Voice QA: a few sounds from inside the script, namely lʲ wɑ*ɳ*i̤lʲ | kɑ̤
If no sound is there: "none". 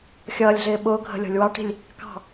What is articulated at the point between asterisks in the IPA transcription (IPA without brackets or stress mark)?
ʈ